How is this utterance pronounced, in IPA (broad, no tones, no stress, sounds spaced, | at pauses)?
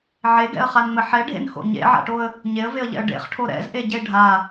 ʕ e ɡ ɛ̰ ə̯ χ a n ŋ͡m ɘ ħ ɛ ɖʱ ḛ n x o̰ ɲ ḛ ʕ a̰ ʈ o ə̯ | ɲ e ə̯ v e ə̯ ʎ ɛ̰ ə̯ ɖ ḛ χ ʈʰ o ɾ ɛ̰ z ʔ e ɟ e ɖʱ a